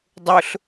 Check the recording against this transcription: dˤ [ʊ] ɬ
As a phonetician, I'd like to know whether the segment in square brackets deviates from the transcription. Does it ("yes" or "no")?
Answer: no